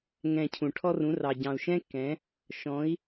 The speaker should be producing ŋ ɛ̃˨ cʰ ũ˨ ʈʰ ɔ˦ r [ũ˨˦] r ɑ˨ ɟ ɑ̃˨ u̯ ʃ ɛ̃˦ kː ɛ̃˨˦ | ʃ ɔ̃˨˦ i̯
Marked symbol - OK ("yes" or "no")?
yes